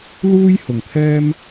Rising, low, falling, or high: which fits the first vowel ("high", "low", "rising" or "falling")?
high